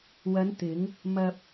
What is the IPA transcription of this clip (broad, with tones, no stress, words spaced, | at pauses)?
wɐ˨˧nt̪ɪ˨˧ŋ | mɐ˧p̚